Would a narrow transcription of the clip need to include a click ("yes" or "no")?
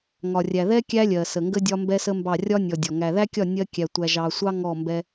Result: no